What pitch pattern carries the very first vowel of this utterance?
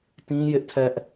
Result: high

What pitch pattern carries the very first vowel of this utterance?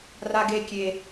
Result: high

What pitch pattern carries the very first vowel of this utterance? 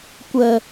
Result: low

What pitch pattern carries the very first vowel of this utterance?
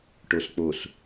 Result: low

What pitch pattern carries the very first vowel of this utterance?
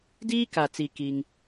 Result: high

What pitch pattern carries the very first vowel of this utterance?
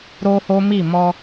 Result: high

